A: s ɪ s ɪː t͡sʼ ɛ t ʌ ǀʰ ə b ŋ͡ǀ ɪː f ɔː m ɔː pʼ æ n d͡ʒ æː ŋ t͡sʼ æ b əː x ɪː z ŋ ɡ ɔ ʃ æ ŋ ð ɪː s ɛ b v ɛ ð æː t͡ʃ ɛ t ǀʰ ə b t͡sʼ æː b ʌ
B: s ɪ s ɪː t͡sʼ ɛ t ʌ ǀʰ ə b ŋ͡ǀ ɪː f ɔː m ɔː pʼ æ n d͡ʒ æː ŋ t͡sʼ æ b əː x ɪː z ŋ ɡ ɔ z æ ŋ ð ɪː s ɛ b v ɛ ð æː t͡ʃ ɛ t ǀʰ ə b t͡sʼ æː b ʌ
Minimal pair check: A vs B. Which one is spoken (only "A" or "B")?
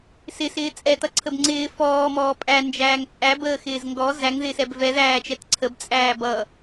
B